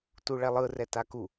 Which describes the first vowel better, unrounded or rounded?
rounded